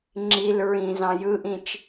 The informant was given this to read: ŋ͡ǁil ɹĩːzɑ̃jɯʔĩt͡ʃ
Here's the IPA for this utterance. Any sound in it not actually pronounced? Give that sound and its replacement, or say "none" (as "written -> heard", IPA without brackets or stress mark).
none